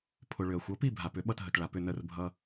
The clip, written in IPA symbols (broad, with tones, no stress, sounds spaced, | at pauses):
pʰ ʊ˩ ɭ ʏ˩ ɐ̯ xʷ ʌ˩˥ p i˥˩ bʱ a˩ p ʏ˩˥ ɓ ʌ˥˩ t ɦ ə˩ t ɭ a˩ p ʏ˥˩ n ə˥˩ r bʱ ʌ˥